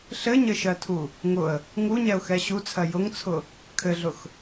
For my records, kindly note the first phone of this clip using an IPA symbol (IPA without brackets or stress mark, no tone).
ɬ